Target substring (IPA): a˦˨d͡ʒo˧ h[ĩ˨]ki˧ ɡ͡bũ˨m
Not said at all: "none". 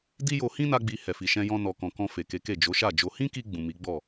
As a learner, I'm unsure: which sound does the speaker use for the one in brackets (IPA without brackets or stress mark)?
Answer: ĩ˦